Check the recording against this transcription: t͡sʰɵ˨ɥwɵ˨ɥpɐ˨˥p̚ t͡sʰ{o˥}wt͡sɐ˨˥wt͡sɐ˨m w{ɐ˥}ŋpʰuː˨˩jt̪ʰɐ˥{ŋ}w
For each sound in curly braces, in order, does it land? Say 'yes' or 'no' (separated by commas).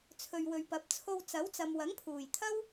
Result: no, no, no